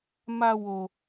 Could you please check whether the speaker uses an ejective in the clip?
no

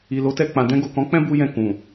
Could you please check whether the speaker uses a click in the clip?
no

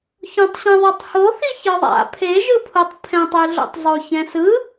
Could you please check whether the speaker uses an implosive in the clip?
no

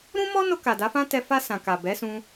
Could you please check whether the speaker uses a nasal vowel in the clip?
yes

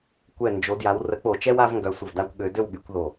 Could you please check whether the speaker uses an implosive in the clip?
yes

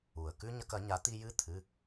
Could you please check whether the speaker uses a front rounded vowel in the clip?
no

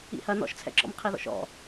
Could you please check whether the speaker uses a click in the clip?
yes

